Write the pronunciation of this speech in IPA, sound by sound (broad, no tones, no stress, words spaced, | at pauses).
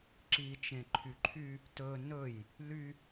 ǁit͡ʃẽ ǃʰyǃʰy | tɵ nɵj | ly